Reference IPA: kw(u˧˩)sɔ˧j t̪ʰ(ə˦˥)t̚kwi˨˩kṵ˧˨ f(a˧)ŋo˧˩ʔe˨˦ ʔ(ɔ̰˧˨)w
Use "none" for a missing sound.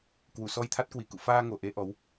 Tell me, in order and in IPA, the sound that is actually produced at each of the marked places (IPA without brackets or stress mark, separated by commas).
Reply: u˧˩, a˦˥, aː˧, ɔ˨˦